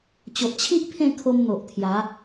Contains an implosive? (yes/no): no